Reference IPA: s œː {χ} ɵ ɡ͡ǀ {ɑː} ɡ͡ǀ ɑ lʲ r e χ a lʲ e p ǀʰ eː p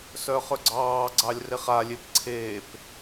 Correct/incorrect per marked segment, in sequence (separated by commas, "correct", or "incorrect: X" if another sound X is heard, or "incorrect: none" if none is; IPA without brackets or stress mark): correct, correct